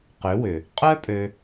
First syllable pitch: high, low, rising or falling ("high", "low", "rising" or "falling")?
rising